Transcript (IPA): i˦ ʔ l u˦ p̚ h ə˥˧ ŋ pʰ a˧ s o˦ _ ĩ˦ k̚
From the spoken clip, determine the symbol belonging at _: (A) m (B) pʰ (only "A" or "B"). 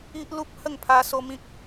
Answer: A